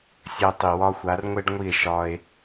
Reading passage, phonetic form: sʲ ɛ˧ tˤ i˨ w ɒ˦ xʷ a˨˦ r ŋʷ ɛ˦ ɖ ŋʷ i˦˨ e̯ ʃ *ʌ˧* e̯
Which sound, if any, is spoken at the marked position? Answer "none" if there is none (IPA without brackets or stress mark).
ɒ˧